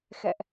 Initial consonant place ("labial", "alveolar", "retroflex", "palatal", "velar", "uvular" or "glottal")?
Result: velar